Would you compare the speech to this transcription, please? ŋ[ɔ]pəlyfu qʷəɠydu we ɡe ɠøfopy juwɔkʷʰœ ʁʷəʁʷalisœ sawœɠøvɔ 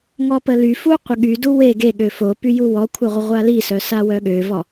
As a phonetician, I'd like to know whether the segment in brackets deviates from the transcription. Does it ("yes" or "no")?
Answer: no